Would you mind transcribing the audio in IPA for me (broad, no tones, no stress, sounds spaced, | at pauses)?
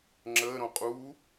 ŋ͡ǁ əː ɾ õ qʼ uː